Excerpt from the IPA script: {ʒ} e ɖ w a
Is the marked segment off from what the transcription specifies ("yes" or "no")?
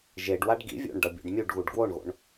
no